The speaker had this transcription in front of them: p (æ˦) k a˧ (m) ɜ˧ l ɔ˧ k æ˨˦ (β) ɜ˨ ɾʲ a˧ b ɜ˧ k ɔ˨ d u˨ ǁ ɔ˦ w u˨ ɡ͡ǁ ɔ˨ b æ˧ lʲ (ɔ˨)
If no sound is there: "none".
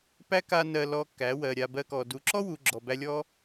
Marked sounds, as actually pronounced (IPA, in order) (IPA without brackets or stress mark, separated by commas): æ˦, n, w, ɔ˦